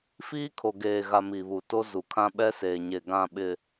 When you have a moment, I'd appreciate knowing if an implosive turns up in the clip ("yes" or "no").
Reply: yes